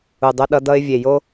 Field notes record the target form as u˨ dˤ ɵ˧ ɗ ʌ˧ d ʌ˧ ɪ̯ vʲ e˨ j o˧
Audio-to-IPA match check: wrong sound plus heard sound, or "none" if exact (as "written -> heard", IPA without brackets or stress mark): none